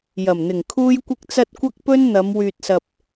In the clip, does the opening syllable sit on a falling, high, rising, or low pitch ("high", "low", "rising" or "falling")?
low